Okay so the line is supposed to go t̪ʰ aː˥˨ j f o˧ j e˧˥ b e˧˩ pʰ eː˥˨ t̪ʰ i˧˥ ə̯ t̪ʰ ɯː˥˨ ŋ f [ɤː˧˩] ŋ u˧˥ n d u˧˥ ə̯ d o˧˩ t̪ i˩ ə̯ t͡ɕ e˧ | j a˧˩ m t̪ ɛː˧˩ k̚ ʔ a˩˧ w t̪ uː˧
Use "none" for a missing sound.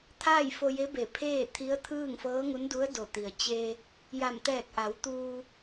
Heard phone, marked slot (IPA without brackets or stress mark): ɤː˧˥